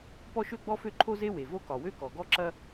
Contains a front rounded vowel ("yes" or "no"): yes